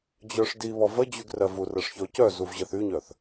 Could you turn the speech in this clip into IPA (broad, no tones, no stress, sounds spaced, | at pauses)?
d͡ʑ œ ʂ d i β ɔ v ə d͡ʑ y ɡ r ɜ v u r ɜ ʂ ç ɔ c œ z u v ʑ ɜ θ y ɲ œ θ